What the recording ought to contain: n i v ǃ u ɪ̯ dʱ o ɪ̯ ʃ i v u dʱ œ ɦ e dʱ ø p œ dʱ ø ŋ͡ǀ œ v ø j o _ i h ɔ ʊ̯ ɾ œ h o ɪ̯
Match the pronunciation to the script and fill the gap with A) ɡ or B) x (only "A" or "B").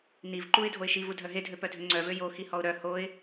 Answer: B